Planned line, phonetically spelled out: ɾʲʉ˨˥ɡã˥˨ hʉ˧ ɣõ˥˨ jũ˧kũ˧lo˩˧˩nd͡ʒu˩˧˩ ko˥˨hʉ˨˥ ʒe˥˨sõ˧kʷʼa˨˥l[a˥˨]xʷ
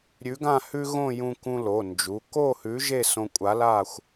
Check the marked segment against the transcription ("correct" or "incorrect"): correct